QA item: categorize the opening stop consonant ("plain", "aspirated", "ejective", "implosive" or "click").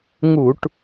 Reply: plain